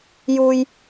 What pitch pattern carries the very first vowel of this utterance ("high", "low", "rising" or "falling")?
high